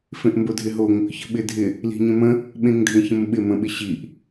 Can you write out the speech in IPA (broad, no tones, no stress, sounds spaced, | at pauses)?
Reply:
f ẽ ʔ m b o dʱ ɪ ɦ o ŋ | ç ə̤ ɓ ɪ dʱ ɪ | l i̤ ɲ ə̃ m ə̃ | ɓ ẽ ŋ dʱ ẽ ç ə̃ m ɓ ɪ m ə̃ ɓ ɪ ɕ i ʔ